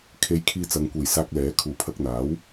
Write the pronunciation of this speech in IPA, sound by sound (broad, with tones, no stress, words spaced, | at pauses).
kʰe˧jkʰiː˧t͡sɐ˨˧ŋ kʷe˨jsaː˧k̚lɛː˨˥ kʰuː˨pʰɐ˧k̚n̪aː˨˥w